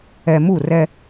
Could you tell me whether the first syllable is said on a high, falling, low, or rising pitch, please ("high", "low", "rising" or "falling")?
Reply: low